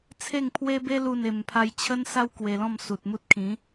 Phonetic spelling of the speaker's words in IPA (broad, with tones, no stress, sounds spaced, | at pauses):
t͡sʰ e˥˧ ŋ pʰ w e˦ b e˦ l u˥˧ n e˧ m pʰ a˦ j t͡ɕʰ ə˦ n s a˦ w k w e˧ l ɔ̃˥˧ m s u˨ t̚ m u˦ t̚ kʰ ĩ˨˦